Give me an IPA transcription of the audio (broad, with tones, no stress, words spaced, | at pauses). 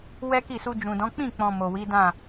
wɛ˦ki˦˨su˧ d͡ʒũ˨dɔ̃˨˦ k͡pĩ˦˨k͡pɔ̃˨ mo˨wi˨˦dã˦˨